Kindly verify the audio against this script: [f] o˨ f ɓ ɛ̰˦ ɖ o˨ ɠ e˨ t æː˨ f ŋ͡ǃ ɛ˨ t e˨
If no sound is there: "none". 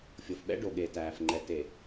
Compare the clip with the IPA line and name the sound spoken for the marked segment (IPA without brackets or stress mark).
fʲ